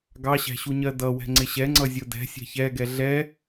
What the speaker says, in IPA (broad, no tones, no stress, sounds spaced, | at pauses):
ɡ ɑ ɕ æ̤ ɕ u ɲ ɜ d ʌ w ɛ̤ ŋ͡ǀ ɪ ɕ ɛ ŋ͡ǀ ʌ zʲ ʊ d ɛ̤ sʲ æ̤ ç ɛ ɡ ɛ ɮ ɛ